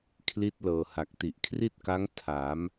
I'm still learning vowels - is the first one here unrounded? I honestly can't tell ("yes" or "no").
yes